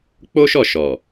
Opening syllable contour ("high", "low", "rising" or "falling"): high